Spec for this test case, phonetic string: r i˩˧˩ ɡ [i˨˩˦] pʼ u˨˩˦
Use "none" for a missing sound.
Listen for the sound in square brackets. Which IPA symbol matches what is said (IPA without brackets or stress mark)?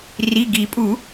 i˨˩˦